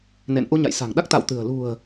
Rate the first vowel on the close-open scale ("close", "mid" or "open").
mid